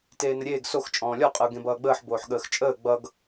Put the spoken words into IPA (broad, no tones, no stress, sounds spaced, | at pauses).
t eː n ə ɾʲ eː ɡ s o x t͡ʃʼ ɔ̃ː lʲ ɔ qʼ ə ʊ̯ ɡ ẽ b ʌː ɡ͡b əː ħ b oː ħ ɠ əː x t͡ʃʼ əː ɡ͡b ʌ ɡ